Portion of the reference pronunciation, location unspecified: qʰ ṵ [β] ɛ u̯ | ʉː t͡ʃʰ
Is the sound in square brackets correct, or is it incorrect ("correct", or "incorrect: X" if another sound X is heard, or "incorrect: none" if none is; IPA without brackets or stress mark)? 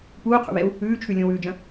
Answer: correct